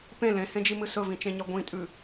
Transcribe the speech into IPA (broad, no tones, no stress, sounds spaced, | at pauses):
p ẽ l ẽ h ẽ d͡ʒ i m ɨ s ɵ v ĩ t͡ʃ ẽ ɲ ɐ ɡʷ ĩ tʼ ʉ